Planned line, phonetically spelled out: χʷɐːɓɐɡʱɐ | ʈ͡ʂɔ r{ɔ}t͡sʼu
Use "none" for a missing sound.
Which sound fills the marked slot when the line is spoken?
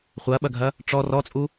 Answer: ɔ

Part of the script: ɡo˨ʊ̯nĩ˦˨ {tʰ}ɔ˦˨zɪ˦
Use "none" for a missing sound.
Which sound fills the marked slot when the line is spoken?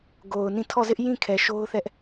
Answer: tʰ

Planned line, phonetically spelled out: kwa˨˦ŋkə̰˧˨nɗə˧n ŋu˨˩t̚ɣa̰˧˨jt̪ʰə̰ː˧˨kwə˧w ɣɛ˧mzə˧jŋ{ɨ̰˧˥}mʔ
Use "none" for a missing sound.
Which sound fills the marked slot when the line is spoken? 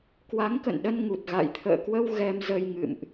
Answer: ɨ̰˧˨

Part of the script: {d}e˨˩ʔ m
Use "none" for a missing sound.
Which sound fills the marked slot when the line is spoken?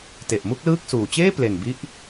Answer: t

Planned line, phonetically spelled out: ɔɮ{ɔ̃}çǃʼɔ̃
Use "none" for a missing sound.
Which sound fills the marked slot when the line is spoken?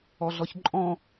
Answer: ɔ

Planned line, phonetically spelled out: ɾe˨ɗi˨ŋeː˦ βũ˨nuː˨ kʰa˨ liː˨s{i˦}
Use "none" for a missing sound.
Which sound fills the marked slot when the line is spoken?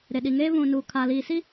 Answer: i˦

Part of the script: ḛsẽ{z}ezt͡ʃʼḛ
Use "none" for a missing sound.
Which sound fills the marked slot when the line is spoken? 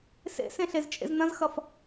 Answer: ɬ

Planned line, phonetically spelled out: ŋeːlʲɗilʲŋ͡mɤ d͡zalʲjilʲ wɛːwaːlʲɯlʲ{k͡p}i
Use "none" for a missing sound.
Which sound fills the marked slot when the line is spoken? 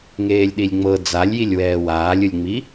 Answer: ŋ͡m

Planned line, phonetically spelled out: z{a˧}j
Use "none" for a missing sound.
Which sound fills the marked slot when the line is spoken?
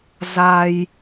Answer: a˧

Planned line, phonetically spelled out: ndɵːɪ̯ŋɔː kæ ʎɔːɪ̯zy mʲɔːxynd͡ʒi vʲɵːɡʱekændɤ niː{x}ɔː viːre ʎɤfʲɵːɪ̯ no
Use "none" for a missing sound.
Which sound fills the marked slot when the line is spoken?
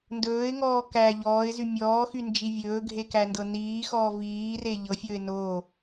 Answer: x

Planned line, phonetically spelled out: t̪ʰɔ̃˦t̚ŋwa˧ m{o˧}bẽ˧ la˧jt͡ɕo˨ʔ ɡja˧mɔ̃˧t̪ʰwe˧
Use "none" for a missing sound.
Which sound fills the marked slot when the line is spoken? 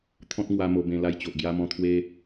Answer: o˧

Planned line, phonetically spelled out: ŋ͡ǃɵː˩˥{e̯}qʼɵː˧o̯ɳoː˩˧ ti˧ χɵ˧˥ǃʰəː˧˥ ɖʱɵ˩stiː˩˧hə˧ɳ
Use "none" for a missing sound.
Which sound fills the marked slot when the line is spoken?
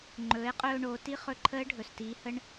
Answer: e̯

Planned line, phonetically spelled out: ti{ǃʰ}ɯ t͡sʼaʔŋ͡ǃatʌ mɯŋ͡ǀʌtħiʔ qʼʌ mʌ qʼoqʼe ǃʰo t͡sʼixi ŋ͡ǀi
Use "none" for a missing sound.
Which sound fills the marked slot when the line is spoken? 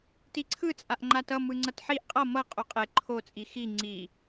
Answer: ǀʰ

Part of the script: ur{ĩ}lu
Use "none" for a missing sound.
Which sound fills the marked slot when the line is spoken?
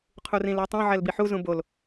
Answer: ĩ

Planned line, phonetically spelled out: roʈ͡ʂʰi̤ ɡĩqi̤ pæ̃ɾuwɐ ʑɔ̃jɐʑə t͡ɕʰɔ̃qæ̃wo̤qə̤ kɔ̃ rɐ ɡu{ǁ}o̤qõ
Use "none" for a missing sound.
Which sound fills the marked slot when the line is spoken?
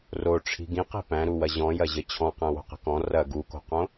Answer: k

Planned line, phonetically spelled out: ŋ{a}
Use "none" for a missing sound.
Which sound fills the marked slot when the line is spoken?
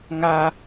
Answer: a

